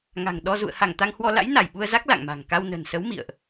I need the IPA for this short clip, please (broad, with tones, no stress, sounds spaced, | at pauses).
ŋ a̤˨˩ ŋ ɗ ɔ˧ z ṵ˧˨ ə̯ h a˧˩ ŋ t̪ a˧ ŋ h w ɔ˧ l a̰˧˥ j n a˧˩ j ɓ u˧ ə̯ z a˦˥ k̚ l a̰˧˨ ŋ m a̤˨˩ ŋ k a˧ w n ə̤˨˩ n s ə˨˦ w m ḭ˧˨ ə̯ ʔ